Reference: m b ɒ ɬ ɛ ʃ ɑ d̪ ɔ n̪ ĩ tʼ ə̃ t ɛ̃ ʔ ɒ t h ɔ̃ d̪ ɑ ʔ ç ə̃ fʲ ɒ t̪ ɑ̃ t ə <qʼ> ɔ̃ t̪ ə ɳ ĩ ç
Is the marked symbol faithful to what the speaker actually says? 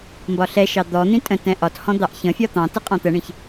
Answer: yes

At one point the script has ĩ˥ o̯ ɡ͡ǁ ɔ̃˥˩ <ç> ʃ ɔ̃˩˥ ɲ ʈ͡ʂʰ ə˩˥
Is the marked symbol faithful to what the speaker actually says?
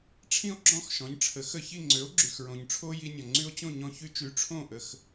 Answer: no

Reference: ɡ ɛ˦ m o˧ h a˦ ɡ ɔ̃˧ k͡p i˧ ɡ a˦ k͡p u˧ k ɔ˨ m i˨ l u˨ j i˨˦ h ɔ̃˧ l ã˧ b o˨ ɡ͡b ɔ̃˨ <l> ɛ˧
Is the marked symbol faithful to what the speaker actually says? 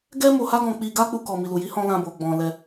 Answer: yes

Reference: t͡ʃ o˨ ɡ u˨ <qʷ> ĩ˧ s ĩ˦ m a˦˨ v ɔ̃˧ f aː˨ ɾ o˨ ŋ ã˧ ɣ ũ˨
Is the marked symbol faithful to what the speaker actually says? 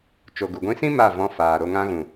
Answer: no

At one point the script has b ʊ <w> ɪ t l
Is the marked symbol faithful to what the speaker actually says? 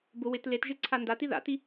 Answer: yes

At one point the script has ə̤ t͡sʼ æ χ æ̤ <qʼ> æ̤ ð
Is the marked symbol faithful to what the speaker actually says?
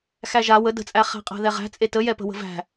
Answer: yes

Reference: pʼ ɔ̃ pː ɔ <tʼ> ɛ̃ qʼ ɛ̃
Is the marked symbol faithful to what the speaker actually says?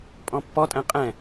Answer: yes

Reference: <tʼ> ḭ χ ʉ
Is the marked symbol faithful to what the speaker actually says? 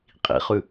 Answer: no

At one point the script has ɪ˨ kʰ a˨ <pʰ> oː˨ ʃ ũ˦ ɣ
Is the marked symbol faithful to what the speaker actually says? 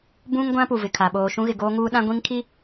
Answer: no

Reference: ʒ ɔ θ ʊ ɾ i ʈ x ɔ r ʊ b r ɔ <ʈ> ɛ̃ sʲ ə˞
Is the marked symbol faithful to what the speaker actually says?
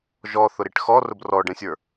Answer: no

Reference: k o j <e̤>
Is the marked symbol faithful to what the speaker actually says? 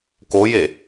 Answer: no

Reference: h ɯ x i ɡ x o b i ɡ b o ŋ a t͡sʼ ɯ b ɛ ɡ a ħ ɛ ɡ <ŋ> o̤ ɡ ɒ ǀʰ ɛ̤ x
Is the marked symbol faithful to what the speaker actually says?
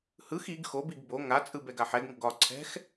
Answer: yes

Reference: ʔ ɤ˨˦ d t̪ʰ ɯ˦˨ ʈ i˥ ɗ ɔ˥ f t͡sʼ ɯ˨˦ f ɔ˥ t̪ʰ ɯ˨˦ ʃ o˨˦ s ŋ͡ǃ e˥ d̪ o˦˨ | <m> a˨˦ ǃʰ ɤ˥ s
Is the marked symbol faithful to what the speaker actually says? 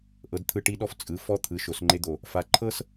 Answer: no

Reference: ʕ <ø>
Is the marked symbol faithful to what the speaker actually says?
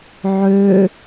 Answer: yes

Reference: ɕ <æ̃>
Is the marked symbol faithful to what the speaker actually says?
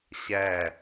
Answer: no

